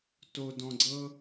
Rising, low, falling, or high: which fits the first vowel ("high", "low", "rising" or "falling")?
low